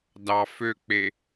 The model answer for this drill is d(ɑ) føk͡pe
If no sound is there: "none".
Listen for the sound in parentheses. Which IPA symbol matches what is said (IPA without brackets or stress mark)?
ɑ